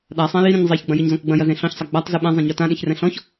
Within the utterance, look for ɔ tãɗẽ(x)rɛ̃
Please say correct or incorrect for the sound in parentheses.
incorrect